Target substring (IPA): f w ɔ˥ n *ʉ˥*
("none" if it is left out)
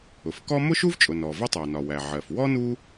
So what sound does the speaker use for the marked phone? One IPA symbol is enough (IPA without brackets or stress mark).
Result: u˥